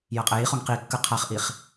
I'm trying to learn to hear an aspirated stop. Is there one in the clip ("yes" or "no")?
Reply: yes